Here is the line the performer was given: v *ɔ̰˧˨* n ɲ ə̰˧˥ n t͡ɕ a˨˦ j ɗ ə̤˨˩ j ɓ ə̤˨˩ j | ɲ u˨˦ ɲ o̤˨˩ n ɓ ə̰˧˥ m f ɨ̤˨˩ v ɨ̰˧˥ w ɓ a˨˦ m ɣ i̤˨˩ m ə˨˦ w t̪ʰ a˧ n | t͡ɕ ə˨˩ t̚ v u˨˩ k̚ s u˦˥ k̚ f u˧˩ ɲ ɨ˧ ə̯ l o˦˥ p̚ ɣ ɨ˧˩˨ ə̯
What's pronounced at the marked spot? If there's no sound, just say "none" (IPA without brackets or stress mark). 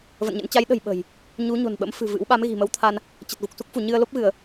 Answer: ə̰˧˨